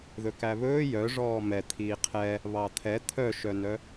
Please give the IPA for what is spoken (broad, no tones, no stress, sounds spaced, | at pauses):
ð ɵ k æ β ɵː j œ ʐ ɔː m ɛ t̪ʰ iː qʰ ɛ | β ɑ t̪ʰ ɛ t̪ʰ œ ʃ œ n œ